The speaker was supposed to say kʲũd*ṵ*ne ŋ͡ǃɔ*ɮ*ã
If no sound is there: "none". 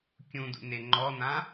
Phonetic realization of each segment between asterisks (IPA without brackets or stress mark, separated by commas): ṵ, n